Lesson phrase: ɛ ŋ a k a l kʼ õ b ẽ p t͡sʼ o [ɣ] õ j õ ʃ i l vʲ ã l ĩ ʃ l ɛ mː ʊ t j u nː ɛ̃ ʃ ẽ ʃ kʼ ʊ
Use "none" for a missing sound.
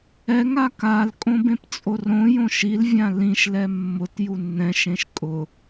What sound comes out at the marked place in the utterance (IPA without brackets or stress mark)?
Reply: r